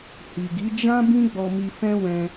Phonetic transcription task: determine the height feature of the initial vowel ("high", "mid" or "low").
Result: high